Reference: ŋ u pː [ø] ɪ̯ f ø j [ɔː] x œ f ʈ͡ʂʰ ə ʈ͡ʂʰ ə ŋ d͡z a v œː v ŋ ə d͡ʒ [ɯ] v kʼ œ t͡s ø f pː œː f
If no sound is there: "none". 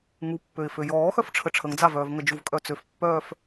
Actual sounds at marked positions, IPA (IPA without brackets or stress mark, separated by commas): ø, ɔː, u